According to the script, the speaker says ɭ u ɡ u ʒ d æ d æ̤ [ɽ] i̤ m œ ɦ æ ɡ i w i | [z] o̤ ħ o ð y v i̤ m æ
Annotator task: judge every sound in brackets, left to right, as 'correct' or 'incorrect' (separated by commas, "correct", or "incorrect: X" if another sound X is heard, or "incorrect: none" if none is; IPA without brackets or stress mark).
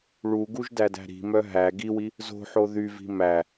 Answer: incorrect: ɾ, correct